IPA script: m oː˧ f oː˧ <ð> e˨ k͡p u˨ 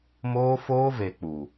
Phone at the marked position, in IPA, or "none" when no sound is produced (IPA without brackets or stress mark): v